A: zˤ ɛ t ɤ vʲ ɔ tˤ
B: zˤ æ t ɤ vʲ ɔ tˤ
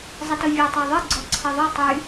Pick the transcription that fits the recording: A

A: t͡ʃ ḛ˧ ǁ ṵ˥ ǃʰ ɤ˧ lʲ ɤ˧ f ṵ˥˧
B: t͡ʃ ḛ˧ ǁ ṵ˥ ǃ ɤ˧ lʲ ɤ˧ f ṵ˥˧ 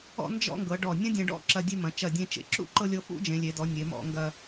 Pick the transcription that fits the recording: B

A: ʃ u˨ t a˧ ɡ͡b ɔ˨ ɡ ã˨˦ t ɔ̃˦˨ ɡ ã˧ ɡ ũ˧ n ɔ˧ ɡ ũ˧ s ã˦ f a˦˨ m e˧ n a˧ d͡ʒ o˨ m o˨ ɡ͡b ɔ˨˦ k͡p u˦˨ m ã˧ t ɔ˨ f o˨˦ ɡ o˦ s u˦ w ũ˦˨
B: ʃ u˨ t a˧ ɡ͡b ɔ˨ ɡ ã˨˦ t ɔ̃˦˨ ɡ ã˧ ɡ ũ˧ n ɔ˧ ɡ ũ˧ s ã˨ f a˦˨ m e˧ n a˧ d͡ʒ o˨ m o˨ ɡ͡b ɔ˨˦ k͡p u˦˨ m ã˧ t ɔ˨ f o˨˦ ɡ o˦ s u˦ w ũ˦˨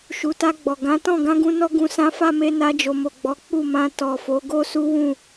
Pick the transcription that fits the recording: A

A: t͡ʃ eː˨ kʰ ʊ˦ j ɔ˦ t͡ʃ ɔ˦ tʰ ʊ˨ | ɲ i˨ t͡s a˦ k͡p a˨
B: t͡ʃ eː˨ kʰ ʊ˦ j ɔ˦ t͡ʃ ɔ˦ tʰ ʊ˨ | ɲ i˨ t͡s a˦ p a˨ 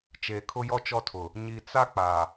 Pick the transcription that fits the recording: A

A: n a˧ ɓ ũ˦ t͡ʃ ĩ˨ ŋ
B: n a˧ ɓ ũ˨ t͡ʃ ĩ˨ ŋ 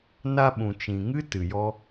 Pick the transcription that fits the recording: B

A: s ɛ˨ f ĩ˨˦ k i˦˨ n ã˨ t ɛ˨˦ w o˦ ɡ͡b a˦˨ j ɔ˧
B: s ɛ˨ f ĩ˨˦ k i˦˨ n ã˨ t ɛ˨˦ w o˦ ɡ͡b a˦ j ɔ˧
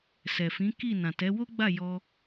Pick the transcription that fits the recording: A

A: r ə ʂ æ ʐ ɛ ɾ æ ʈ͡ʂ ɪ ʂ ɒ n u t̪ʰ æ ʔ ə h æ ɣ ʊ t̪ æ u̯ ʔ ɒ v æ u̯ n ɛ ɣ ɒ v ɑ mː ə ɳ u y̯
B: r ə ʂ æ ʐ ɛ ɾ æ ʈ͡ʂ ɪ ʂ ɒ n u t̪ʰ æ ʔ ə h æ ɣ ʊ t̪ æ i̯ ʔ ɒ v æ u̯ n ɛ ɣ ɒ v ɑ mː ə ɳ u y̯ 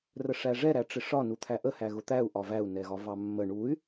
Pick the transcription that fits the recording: A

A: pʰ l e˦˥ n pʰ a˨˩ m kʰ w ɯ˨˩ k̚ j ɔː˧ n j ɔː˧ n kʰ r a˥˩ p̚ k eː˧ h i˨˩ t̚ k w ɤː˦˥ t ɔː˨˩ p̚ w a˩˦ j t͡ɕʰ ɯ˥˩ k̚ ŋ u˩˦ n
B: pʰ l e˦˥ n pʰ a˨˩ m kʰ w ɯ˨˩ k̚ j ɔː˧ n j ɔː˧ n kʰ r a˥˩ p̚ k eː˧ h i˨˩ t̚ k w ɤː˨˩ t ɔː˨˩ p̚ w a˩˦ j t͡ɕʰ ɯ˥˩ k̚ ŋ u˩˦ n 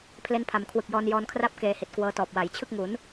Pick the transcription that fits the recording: A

